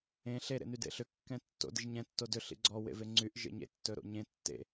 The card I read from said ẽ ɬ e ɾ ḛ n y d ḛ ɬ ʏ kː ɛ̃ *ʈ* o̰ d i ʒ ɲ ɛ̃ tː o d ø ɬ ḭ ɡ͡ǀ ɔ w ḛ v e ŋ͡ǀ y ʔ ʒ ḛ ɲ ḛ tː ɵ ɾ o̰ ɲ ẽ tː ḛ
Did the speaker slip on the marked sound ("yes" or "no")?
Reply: yes